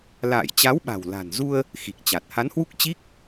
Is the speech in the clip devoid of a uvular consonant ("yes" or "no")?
yes